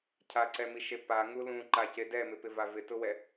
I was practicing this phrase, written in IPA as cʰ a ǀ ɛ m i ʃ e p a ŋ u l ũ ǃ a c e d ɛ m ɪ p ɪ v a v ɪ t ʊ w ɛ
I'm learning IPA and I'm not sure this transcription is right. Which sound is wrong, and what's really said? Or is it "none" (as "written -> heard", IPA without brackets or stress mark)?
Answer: none